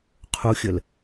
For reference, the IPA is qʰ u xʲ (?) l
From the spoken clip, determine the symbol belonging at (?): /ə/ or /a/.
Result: ə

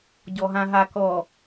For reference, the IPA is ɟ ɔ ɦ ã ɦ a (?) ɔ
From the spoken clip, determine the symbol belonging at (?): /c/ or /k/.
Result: k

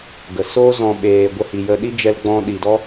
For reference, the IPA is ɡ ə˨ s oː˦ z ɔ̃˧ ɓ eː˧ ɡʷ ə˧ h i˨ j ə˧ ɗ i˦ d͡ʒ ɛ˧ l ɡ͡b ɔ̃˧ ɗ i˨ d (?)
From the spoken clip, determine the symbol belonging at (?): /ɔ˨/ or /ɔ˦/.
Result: ɔ˦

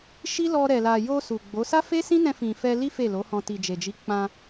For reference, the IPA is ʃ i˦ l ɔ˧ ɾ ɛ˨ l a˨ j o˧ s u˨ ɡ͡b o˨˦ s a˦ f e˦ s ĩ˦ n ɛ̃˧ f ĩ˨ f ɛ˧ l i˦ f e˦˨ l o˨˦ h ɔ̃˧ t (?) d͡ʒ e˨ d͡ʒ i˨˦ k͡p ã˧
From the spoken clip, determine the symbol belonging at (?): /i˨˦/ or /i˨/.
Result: i˨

